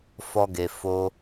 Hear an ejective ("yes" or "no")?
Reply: no